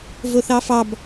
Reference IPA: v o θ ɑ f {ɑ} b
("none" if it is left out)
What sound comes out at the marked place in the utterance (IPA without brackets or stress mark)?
ɑ